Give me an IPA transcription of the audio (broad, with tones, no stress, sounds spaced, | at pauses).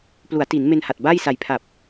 p l u˩˦ a̯ t i˩˦ n m e˧ n h a˨˩ t̚ b a˥˩ j s a˨˩ j pʰ a˨˩ p̚